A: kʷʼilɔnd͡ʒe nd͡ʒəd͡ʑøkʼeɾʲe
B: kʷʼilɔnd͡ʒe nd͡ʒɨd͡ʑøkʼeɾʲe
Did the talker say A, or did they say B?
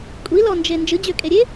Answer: B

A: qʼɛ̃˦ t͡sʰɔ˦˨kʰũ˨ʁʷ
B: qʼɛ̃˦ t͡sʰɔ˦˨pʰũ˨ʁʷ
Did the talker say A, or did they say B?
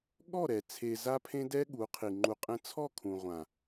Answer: A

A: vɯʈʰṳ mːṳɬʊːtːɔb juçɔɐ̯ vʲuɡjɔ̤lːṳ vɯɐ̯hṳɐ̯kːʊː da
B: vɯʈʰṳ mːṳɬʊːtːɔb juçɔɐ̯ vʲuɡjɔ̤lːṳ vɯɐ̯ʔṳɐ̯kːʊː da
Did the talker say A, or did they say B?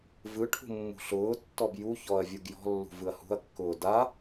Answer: A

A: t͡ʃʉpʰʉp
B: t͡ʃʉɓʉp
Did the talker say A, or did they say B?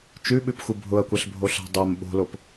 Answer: B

